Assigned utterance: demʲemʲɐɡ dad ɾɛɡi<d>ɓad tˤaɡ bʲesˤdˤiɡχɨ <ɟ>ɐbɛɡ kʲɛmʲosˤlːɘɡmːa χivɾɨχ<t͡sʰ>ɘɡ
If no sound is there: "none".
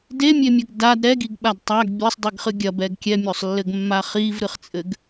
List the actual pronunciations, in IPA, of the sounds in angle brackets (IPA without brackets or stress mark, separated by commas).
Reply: ɡ, ɡʲ, t͡sʼ